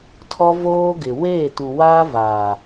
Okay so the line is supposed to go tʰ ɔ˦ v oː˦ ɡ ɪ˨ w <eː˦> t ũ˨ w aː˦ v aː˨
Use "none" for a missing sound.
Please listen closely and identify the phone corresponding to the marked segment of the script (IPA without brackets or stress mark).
eː˦˨